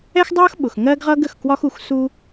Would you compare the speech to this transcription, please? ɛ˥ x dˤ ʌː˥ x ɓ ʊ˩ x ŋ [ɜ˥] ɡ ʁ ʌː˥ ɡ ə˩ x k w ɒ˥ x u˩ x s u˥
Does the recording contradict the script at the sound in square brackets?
no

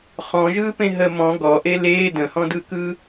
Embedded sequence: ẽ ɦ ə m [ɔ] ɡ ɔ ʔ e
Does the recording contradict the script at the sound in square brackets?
yes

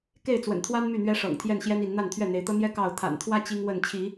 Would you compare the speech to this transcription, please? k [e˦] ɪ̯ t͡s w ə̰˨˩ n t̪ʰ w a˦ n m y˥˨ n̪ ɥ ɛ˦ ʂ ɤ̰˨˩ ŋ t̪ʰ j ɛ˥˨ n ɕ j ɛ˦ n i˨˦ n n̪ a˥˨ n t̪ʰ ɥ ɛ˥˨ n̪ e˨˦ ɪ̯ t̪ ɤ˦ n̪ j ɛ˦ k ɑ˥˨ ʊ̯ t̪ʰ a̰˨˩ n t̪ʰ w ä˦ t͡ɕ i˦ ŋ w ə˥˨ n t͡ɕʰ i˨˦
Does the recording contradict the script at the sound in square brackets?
yes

